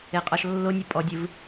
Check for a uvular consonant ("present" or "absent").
present